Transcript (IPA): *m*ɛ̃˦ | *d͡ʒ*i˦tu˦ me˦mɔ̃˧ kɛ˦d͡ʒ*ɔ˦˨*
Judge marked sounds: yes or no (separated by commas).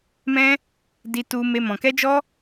yes, no, no